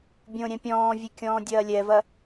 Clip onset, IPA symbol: bʲ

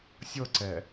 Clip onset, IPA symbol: sʲ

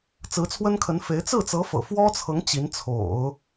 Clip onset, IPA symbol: t͡s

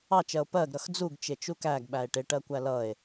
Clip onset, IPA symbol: ɑ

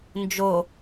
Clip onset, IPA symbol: n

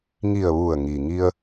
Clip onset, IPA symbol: ŋ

